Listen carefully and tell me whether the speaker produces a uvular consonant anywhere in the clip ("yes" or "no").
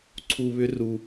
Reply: no